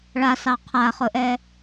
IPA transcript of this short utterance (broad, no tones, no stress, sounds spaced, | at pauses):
ɭ a s ɑ qʰ a χ ʊ ʔ ɛ